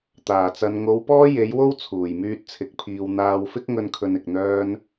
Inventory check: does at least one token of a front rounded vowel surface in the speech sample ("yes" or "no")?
yes